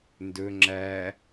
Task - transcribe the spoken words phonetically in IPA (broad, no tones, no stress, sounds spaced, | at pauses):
n d ɵ ŋ͡ǁ æ